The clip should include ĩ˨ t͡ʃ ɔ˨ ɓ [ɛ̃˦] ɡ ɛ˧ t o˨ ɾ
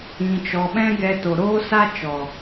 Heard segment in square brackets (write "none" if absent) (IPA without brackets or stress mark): ɛ̃˦